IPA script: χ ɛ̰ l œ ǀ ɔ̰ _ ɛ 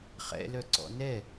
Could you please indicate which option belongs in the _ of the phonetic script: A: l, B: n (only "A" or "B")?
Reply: B